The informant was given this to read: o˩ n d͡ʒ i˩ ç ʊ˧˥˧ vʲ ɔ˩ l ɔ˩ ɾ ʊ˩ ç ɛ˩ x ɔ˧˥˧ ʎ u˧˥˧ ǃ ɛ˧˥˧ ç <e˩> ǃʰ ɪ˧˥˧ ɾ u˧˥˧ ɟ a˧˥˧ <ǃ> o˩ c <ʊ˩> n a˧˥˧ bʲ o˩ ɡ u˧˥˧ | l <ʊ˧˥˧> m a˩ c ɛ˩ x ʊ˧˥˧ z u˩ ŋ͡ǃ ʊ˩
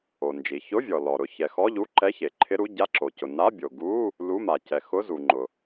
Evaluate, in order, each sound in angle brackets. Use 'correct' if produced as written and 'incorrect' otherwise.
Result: correct, incorrect: ǁ, correct, incorrect: u˧˥˧

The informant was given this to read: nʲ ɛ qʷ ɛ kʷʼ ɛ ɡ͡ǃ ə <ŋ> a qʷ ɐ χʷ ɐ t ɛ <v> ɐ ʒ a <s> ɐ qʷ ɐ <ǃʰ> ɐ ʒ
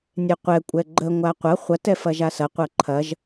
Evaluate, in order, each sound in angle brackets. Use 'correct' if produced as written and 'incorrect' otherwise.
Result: incorrect: ŋʷ, incorrect: f, correct, correct

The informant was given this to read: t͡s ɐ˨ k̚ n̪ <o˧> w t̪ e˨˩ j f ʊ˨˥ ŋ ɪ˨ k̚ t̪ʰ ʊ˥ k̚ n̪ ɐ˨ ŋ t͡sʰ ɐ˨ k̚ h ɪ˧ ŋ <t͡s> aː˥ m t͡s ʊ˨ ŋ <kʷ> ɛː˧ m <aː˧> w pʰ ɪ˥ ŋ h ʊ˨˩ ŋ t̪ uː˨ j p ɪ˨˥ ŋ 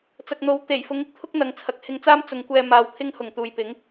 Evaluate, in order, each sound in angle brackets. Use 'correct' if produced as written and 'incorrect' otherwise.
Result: incorrect: o˨˥, correct, correct, correct

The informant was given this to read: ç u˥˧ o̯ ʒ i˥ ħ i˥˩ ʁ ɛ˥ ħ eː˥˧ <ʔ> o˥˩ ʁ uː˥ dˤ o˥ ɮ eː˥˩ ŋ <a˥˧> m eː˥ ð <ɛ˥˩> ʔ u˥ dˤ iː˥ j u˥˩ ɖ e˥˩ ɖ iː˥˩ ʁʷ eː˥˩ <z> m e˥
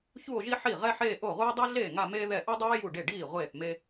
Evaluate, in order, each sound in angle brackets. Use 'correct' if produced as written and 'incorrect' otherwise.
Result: correct, correct, correct, incorrect: θ

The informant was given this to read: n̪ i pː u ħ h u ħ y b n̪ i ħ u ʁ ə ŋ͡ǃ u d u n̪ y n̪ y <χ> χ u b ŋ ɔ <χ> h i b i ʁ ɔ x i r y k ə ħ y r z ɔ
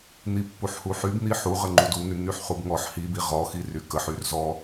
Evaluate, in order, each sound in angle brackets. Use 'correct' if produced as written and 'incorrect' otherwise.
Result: incorrect: ħ, incorrect: ħ

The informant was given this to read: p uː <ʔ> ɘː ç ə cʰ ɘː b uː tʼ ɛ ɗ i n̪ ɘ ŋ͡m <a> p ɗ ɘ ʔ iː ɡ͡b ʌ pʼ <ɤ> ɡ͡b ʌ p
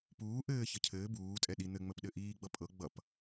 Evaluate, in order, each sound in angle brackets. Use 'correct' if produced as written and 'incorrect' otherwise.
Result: correct, incorrect: ə, correct

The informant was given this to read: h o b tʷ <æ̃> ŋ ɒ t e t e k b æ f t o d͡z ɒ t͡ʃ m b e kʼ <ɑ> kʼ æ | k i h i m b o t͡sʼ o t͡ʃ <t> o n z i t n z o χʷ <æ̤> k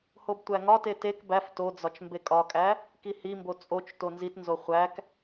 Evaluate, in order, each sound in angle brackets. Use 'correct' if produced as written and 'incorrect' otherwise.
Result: incorrect: æ, incorrect: ɒ, correct, incorrect: æ

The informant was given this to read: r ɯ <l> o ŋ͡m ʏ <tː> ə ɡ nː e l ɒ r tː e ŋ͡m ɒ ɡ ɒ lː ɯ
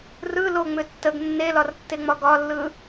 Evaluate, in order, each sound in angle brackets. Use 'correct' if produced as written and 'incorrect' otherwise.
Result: correct, correct

